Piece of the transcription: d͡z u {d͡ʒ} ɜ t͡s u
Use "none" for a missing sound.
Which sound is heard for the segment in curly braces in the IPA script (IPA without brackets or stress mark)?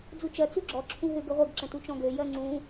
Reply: t͡ʃ